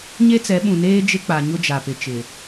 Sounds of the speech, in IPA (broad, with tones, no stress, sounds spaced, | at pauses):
ɲ e˦ t͡s ɛ˨˦ ɓ ũ˨ n eː˦ d͡ʒ ɪ˦ k͡p a˨ ɲ ʊ˦ d͡ʒ a˨ p ɪ˨ t͡ʃ ɪ˨